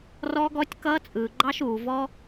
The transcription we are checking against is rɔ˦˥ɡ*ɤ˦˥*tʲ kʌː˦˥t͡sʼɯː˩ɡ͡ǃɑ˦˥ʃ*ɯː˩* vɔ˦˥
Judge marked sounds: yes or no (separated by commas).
no, no